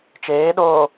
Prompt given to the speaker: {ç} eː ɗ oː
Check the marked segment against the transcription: incorrect: t͡ʃ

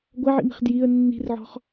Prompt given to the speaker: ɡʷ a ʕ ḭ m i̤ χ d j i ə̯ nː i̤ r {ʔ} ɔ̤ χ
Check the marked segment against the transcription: incorrect: ʕ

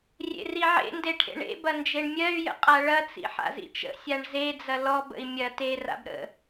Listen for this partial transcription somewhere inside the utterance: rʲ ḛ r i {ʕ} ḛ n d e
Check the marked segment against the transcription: correct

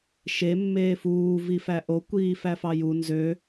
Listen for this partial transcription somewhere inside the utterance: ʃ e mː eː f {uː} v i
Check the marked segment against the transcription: correct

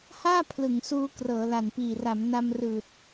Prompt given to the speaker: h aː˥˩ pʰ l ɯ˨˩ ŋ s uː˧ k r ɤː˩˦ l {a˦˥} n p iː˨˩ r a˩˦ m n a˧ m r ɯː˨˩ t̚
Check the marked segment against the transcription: incorrect: a˨˩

